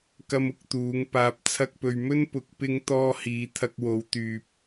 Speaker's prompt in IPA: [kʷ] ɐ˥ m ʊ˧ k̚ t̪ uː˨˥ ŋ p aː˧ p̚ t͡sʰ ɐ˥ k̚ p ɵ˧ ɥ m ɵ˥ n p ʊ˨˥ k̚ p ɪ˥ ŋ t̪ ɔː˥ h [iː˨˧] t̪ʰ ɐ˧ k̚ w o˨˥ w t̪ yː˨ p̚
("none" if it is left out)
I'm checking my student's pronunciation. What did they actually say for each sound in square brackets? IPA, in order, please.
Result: k, iː˨˧

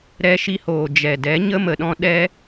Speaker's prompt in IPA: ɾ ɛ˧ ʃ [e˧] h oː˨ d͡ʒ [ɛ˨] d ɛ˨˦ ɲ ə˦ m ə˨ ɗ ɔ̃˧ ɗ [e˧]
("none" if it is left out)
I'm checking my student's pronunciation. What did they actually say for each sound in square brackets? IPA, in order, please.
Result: i˧, ɛ˨, ɛ˧

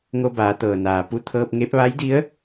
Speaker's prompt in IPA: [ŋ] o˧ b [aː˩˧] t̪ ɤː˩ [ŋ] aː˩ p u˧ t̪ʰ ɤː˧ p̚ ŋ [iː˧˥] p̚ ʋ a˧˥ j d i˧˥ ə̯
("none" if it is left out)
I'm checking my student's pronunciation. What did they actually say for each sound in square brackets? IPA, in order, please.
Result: ŋ, aː˩˧, n, eː˧˥

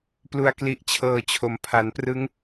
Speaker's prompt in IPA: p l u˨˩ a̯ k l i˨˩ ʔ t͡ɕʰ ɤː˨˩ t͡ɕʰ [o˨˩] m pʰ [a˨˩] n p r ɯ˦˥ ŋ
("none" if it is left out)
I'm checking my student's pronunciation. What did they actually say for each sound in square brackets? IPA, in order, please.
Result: o˩˦, a˩˦

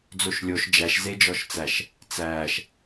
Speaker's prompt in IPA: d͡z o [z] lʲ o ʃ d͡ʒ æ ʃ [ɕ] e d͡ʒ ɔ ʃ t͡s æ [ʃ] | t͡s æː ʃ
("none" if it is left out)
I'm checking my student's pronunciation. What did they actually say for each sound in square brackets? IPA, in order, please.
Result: ʃ, z, ʃ

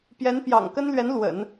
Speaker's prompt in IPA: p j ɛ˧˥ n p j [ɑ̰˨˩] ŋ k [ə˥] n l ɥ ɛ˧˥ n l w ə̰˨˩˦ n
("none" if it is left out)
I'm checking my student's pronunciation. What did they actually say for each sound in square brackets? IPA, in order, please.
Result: ɑ̰˨˩, ə˥

